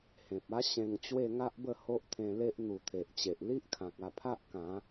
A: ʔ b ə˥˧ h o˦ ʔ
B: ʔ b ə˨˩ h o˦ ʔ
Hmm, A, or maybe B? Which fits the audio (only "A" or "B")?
A